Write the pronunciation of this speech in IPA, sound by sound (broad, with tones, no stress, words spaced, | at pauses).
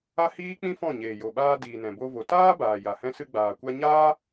a˦hiː˦k͡pĩ˦ fɔ̃˦˨ ɲeː˨jo˨ɓaː˧ diː˨nɛ̃˨bo˧ vo˨taː˦baː˨ ja˨hɛ̃˧sɨ˧ ɡ͡baː˨kʷa˧ɲaː˦